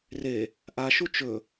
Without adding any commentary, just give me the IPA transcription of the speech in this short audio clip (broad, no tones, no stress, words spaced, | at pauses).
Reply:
re | ʔaʃu t͡ʃɵ